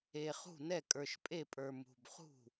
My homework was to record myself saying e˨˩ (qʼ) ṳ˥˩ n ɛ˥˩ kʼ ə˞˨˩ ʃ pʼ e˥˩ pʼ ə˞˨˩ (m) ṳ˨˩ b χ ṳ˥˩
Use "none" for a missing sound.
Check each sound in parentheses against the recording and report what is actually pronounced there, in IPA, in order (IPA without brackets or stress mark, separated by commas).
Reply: χ, m